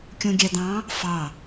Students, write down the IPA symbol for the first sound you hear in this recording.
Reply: kʲ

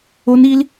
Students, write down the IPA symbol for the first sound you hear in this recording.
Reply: o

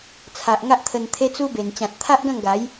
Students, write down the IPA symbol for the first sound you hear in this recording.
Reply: t͡sʰ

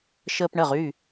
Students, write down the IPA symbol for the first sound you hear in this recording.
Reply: ʃ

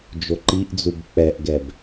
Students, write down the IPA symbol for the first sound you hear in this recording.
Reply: d͡ʒ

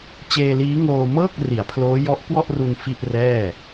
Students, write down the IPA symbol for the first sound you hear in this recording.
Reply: t͡ɕ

